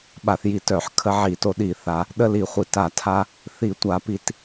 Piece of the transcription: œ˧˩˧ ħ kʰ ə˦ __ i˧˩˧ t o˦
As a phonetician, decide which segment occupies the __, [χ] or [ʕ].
ʕ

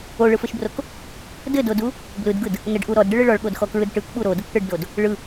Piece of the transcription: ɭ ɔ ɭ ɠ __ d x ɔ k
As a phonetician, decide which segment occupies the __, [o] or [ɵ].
o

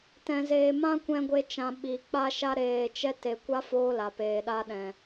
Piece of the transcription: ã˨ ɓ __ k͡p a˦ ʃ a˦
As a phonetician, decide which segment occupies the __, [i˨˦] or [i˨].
i˨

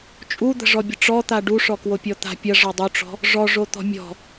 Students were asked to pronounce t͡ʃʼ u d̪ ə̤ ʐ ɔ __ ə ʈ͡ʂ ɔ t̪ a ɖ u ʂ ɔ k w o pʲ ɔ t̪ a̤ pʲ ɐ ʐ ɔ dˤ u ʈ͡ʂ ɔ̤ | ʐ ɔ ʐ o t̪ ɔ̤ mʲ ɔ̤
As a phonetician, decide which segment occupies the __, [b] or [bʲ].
bʲ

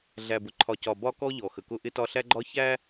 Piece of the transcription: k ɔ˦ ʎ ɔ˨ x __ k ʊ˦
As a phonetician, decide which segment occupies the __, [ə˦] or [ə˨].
ə˨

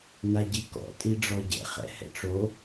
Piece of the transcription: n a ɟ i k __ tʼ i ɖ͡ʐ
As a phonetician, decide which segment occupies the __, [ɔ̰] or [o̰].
ɔ̰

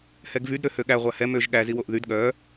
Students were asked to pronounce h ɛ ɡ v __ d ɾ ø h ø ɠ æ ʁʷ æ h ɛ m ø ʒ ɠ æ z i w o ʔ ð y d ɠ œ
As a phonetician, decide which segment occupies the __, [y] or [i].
y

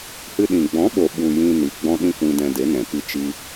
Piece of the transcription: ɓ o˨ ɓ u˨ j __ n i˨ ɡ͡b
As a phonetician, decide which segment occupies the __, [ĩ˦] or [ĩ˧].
ĩ˧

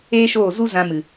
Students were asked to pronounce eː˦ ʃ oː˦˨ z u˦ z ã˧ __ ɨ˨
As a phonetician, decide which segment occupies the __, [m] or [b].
m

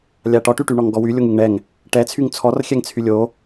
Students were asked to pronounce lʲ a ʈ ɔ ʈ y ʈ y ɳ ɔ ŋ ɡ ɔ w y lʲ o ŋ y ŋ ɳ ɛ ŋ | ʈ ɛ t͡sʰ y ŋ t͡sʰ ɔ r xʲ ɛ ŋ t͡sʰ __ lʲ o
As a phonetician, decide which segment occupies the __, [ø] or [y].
y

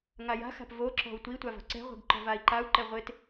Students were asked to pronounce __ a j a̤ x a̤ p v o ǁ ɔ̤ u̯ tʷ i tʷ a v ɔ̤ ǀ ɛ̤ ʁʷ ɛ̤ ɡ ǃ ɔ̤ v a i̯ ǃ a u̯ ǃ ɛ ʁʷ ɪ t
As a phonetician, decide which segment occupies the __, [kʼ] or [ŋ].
ŋ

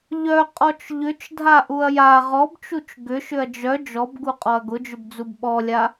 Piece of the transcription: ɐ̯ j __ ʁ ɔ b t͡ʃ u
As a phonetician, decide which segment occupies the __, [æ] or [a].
a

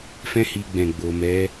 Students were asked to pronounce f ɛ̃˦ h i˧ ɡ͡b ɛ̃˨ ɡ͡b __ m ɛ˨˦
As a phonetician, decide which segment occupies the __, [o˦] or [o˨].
o˨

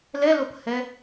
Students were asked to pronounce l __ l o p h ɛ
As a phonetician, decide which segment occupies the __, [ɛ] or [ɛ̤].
ɛ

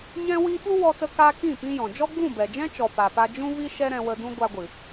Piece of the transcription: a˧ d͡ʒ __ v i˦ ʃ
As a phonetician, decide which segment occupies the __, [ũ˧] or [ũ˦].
ũ˦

